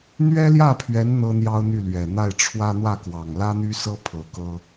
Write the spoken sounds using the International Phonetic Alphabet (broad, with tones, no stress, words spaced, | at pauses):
n̪ɥɛ˥ljä˥˩pʰɥɛ˧˥n n̪ɤ˥n̪jɑ˥ʊ̯n̪y˥˩lɥɛ˨˩ n̪a˥˩ɪ̯ʈ͡ʂʰwä˥ n̪wä˥˩kwɑ˨˩ŋlä˥n̪y˥ sɤ˥ pʰɤ˧˥kɤ˥